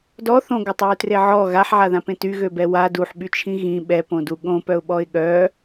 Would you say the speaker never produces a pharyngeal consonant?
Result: no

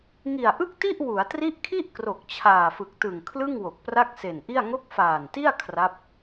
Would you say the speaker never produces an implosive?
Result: yes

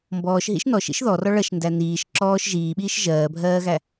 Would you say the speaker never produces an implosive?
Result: no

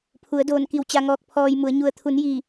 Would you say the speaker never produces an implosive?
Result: yes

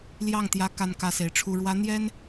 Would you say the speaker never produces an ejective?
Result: yes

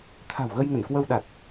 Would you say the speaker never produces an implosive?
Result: no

